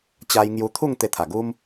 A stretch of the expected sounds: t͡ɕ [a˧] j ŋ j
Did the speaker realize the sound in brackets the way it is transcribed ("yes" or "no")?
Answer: yes